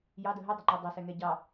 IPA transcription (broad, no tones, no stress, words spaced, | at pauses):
jɑdə ɦədˤʊŋ͡ǃu dˤʌsɛŋɛ ɟɑ